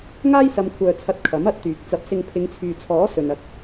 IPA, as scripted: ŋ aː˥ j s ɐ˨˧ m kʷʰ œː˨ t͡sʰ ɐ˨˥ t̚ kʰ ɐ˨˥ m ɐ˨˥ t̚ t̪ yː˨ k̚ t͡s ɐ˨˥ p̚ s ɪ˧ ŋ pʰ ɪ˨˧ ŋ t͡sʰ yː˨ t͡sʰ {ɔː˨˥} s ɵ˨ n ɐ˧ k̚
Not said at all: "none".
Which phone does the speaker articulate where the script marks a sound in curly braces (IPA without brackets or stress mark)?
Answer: ɔː˨˥